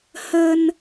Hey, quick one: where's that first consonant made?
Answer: throat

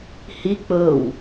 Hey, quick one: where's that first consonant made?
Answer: throat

